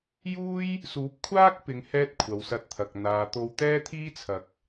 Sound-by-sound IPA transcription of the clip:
juː˥j | suː˨˥p̚kʷʰaː˥k̚pɪ˨˧ŋ hɛː˥t̚kʷʰɐ˨wsɐ˧t̚t̪ʰɐ˨k̚ n̪aː˨t̪o˧w t̪ɛː˥t̪ʰiː˥t͡sʰɐ˨˥k̚

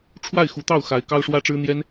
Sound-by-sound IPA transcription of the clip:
ʈ͡ʂʰwa˥˩ɪ̯xu˧˥t̪ɑ˥˩ʊ̯xa˧˥ɪ̯ kɑ˥ʊ̯ʂwä˥ʈ͡ʂɻ̩˥ n̪jɛ˥n

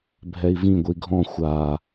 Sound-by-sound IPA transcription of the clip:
bʱɛi̯vĩ ɡʷiɡʱɔ̃ xʷa

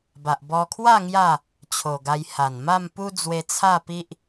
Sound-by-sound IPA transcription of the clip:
ba˨ʔbɔ˧kʰwa˥˧ ŋja˥˧ | t͡ɕʰo˨˩ɡa˧j ha˨˩nma˥˧mpu˦ d͡zwe˧ t͡sʰa˥˧pi˦ʔ

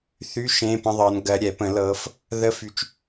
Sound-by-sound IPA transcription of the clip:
θy˧˥˧ ʃẽː˧˥˧pə̃˧˥˧ðˤɤː˨˦n ɡɜ˨˦ɾʲɛ˨˩˦ pə̃˨˩˦lɤ˨˦f | ðə˧˥˧fy˨˦t͡ʃ

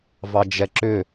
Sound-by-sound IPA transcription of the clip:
vɑd͡ʒɛǁʏ

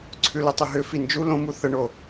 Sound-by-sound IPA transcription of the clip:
ǀʰʉlətˤʏɦʏ find͡ʒu lõmu θəɳo

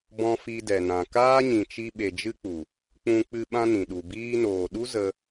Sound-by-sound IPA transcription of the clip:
bɔ̃˧ fi˧dɛ˨nã˨ kaː˦ɲĩ˨t͡ʃi˧ ɓe˨ d͡ʒɨ˦k͡pu˨ | k͡pũ˧k͡pɨ˧ ɓã˦nĩ˨ɗu˨ biː˧noː˨ɗu˦ zə˧

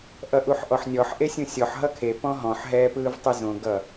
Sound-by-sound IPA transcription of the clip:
ʔʌʔuħʔɔħnʲɔħ ʔesʲũsʲɔħ ɦʌkʰe pɔ̃ɦɔ̃ħ ɦɛːpɯːvtˤezõ ɡʌ

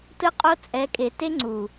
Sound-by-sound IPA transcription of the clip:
tɯ˦qʼo˦ t͡sʼɛ˨˦kʼe˨ te˦ ŋ͡ǀu˨

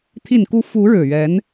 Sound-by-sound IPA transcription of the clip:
t̪ʰi˨˩nku˧˥ fu˧˥ ɻɻ̩˨˩ɥɛ˧˥n

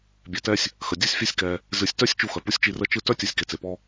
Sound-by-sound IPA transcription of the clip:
bʲɛ˨tɛ˥sʲ | xə˩dʲɯ˦sʲfʲɛ˦sʲkɛ˨ | zɨ˨sʲtœ˥sʲ t͡ʃu˦xœ˩pu˥sʲt͡ʃi˦ rə˥t͡ʃɯ˥ tœ˥tʲɯ˨sʲ ke˨t͡se˩pɔ˦

